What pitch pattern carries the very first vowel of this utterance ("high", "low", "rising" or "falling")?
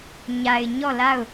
low